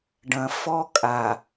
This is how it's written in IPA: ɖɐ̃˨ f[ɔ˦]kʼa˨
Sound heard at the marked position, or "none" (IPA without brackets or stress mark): ɔ˦